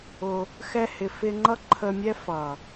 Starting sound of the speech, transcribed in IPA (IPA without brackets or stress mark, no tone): ʊ